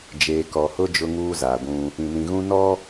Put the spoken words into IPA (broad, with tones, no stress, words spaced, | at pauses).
d͡ʒeː˨kɔ˨hʊ˦ d͡ʒʊ˦ŋuː˦zaː˨ɡʷũ˦ | ĩ˨nĩ˨ɣũ˦ nɔ˦